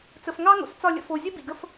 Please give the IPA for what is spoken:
t͡s ə˨ f ŋ ɑ˦ ŋ o̰˨ s t͡s ɒ˦˨ lʲ ə̰˧ f o˨ zʲ ə˦ b ḭ˨ ɡ ə˦ f

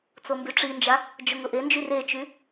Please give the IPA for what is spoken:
t͡s o m b y ʈ͡ʂ i n d͡ʒ a | d͡ʒ ʊ ŋ ʊ ʔ e n d͡ʒ y r e t͡ʃ y

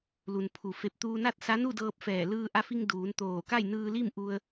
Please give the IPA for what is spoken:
l u˩ n pʰ u˩ f e˧˩ p̚ t̪ uː˧ n a˥˨ t̚ s a˧˥ n u˥˨ d ɤː˧ p̚ f ɛː˧˩ l ɯː˧ ʔ a˧ f i˧ ŋ d uː˩˧ n t̪ oː˧˩ k a˥˨ j n ɯː˧ l i˥˨ m ʔ u˧ ə̯

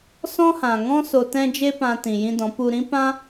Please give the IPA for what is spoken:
s ɔ̃˦ h ã˨ ŋ ɔ̃˦ s o˧ t ɛ̃˦ d͡ʒ e˦ p ã˧ t ĩ˨ j ĩ˧ d ɔ̃˨˦ p u˧ ɾ ĩ˦ p ã˦

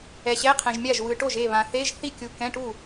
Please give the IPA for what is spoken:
ɛ˨ ɕ ɛ˧˥˧ qʰ ɛ̃˨ ʒ mʲ a˥˩ ʒ w ɯ˨ ʈ o˥˩ ʒ e˥˩ β ã˨ θ e˧˥˧ ʒ θ i˥˩ kʲ u˨ k ɛ̃˧˥˧ ʈ u˥˩

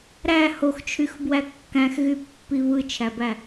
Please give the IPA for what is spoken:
ɾ æ h o x t͡ʃʰ y x b w æ kː æ̃ x ɣ y pː i β ɯ t͡ʃʰ æ b æ

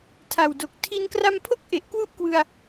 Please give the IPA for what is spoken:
tʰ a˨˩ w d o˨˩ k̚ tʰ i˧ n k r a˧ m pʰ o˥˩ k̚ ʔ e˨˩ ʔ k w u˥˩ ʔ k w ɯ˧ a̯

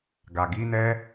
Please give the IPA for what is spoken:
ɡ a˨ ɡ i˨˦ n ɛ˦

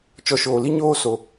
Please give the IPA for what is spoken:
t͡ʃ ɔ˨ ʃ oː˨ l i˧ ɲ oː˧ s o˨

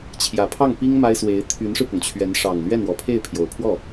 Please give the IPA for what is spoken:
t͡ɕʰ j ä˨˩ pʰ ɑ˥˩ ŋ p i˥ ŋ m a˥ ɪ̯ s w e˧˥ ɪ̯ t̪ʰ y˧˥ n ʂ ɻ̩˧ p ʊ˩ ŋ t͡ɕʰ ɥ ɛ˧˥ n ʂ ɑ˨˩ ŋ l ɥ ɛ˥˩ n w ɔ˨˩ pʰ e˥˩ ɪ̯ pʰ j o˨˩ ʊ̯ pʰ w ɔ˥˩

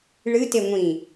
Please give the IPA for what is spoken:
ɭ ɨ t e ŋʷ ĩ

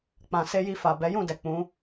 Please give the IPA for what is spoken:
k͡p ã˨ s e˧ j i˧ f a˨ b ɛ˨˦ j ũ˦˨ d ɛ˨ k͡p ũ˨˦

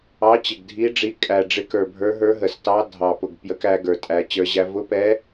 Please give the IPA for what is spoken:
ɑ˨˦ t͡ɕ ɪ˨˩ ɡ dʱ i˨˦ ɖ͡ʐ i˨˦ kʼ æ˨˩ ɖ͡ʐ ɪ˨˦ k ə˞˨˩ bʱ ə˞˨˦ ɦ ə˞˨˦ ɦ ə˨˩ s t ɑ˨˦ dʱ ɑ˨˩ p ʊ˨˩ ɡ p j ə˨˦ k æ˨˦ ɡ ə˞˨˩ tʼ æ˨˩ t͡ɕ ə˞˨˦ ʑ æ˨˦ v ʊ˨˦ p ɛ˨˦

